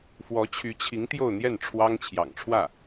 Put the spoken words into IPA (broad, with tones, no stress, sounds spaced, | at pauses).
f w ɔ˧˥ t͡ɕʰ y˧˥ t͡ɕʰ i˧˥ ŋ t̪ j o˥˧ ʊ̯ n̪ j ɛ˥˩ n ʈ͡ʂʰ w ɑ˥ ŋ t͡ɕʰ j ɑ̰˨˩ ŋ ʈ͡ʂʰ w ä˥˩